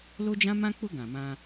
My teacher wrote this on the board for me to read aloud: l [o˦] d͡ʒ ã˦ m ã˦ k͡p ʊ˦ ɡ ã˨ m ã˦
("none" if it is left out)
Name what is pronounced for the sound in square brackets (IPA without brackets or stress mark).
o˦